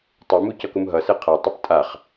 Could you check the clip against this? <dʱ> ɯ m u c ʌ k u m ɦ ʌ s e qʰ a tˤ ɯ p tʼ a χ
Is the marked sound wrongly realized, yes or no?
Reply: yes